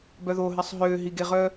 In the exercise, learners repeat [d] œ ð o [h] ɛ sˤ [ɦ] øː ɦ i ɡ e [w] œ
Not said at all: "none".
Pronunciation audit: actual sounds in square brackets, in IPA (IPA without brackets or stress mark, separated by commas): b, ɦ, ɦ, ʁ